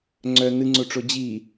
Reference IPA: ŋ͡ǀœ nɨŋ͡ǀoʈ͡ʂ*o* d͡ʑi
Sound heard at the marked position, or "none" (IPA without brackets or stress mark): o